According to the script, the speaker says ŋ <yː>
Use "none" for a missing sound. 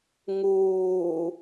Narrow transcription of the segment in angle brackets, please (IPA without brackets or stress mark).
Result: uː